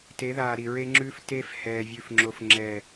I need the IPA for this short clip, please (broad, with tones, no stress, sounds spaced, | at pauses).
t e˨˦ ð aː˨ ɾ i˨ ɹ e˦ ŋ͡ǁ ʉː˦ f t eː˦ f h ɛː˨ vʲ ʉ˨ f ŋ͡ǁ o˨ f ŋ͡ǁ ɛ˨